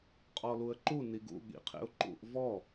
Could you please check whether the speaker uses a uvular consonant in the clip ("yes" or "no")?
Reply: yes